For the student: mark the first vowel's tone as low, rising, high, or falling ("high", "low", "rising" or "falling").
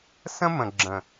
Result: high